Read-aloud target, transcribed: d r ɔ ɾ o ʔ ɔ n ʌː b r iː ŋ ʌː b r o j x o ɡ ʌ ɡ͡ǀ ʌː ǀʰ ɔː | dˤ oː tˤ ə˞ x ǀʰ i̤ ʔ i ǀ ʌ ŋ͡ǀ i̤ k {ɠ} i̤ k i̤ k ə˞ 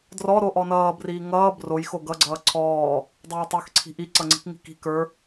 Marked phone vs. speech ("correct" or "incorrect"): incorrect